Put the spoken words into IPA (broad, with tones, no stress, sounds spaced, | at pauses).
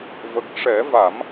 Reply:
v ə˨˩ k̚ ʂ ɛ˨˩˦ v a˨˩˦ m